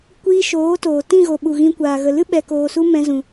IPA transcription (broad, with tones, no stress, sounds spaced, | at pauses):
kʷ iː˧ ʃ oː˨˦ t oː˨ t ĩ˦˨ ɣ o˨ ɓ u˨ ɣ ĩ˧ kʷ aː˨ ɣ ə˨ l ɨ˦ ɓ ɛ˨ k oː˨ s u˧ m ɛ̃˧ z ũ˨